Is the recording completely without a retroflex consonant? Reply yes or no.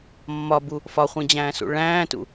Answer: no